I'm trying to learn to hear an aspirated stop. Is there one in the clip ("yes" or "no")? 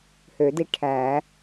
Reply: yes